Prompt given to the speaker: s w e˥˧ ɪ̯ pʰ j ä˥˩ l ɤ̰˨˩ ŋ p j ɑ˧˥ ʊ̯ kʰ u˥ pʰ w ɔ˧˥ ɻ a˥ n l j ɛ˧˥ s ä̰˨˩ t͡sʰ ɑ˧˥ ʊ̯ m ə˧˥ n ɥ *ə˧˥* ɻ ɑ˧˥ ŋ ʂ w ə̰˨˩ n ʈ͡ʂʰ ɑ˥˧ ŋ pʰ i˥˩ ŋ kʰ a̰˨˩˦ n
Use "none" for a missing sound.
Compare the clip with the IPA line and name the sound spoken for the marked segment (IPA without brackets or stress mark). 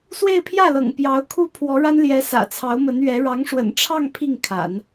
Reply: ɛ˧˥